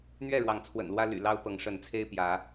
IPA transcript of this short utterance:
n̪ ɥ ɛ˥˨ ɻ w ɑ˨˦ ŋ t͡sʰ w ə̰˨˩ n l w ä˦ l y̰˨˩ l ɑ˦ ʊ̯ p ɤ˨˦ ŋ ʂ ə˨˦ n t͡sʰ e˦ ɪ̯ p j ä˨˦

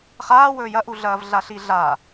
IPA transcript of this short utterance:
χ aː w ɵː j ɐ ʔ u ɮ ɐː v ɮ a ɬ i ɮ a

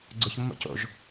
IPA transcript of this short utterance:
ɡ͡ǀ ʊ ç mː o̰ c o̰ ʒ

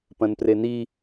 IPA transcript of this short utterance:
p ɐ̃ n p r e n i

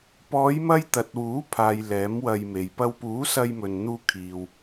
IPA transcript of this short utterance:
p ɔː˨˧ j m ɐ˧ j t̪ ɐ˨ t̚ w uː˨˥ pʰ aː˨ j l ɛː˨˥ m w ɐ˧ j m e˨ j p ɐ˧ w p uː˨˥ s ɐ˧ j m ɵ˨ n n̪ uː˧ kʰ iː˨ w

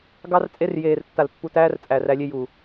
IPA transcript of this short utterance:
ɡ ɑ˦ r t͡sʼ e˦ r j eː˨ r tː a˨ l pː u˨ t æː˦ r t͡sʼ æː˨ r æ˦ lʲ e˦ j u˨

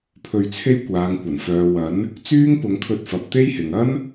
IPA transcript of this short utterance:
pʰ ɵ˧ ɥ t͡sʰ e˥ j kʷ aː˨˧ ŋ kʷ ɐ˨˩ n f œː˨ w ɐ˨˥ n | t͡s yː˥ ŋ p ʊ˨˧ ŋ kʰ ɵ˧ t̚ f ɐ˨ p̚ t̪ e˥ j h ɪ˨ ŋ ɐ˥ n

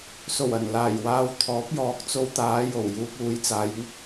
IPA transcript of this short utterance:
s o˨˩ w ɐ˨˩ n l aː˨˩ j w aː˧ w t̪ʰ ɔː˨˥ p̚ j ɔː˨˥ k̚ t͡s o˧ w t̪ aː˨˧ j o˨˩ w j uː˧ p̚ uː˨˧ j t͡s aː˨˧ j ŋ ɪ˥ k̚

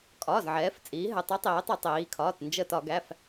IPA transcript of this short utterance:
kʼ ɒː˩˧˩ z ʕ ɛː˩˧ f t͡sʼ iː˩˧ ɦ ɘ˩˧˩ tˤ i˨˥ tˤ iː˩˧ tˤ u˧˩˧ tˤ iː˩˧ kʰ ɒː˩˧˩ t n d͡ʒ ə˧˩ t ɒ˧˩˧ ɡ æ˩˧˩ f

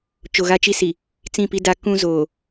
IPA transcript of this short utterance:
t͡ʃ o˨ ɣ a˦ t͡ʃ i˦ s i˨ | t͡s ĩ˦˨ p i˦ d a˦ k ũ˦ z oː˨

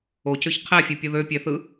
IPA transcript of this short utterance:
o c ø ç qʰ æ fʲ o pʲ o ð ø pʲ æ θ ɯ

